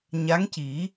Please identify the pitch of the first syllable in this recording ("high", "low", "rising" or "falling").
rising